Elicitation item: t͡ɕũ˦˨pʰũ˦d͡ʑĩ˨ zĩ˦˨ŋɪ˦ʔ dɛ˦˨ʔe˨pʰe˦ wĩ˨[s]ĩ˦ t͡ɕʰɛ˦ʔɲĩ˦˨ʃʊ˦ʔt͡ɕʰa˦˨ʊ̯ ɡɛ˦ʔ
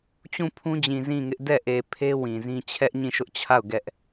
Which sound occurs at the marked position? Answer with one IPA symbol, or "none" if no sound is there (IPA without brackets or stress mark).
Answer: z